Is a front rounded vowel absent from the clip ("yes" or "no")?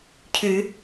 no